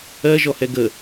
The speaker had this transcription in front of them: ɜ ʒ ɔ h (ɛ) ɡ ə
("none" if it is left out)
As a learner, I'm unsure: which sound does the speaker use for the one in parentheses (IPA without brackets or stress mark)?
ɛ